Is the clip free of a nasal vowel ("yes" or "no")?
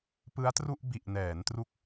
yes